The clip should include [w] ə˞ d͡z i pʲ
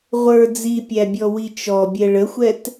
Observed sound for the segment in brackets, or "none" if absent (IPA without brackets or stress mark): ʁʷ